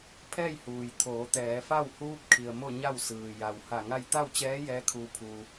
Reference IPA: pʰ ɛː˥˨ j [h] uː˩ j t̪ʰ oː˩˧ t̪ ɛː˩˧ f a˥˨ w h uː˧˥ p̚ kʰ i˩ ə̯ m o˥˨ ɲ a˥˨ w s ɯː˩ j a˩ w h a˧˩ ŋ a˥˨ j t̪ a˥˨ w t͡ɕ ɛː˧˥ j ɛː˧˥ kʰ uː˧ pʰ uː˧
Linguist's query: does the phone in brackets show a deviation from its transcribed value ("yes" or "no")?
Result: no